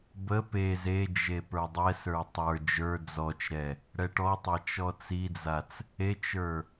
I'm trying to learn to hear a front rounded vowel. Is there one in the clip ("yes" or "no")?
no